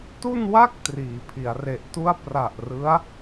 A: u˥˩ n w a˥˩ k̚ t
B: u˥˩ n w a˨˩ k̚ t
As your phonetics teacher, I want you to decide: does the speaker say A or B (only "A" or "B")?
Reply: A